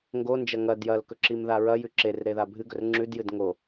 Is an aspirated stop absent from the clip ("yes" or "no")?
yes